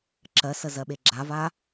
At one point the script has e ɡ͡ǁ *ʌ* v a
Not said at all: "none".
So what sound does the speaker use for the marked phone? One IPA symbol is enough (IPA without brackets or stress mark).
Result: a